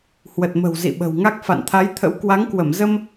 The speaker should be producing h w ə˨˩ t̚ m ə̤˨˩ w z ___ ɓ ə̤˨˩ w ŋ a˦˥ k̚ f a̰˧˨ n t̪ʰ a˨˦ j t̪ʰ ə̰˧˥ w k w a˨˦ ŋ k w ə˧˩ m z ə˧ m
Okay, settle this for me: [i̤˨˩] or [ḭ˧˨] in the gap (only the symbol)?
ḭ˧˨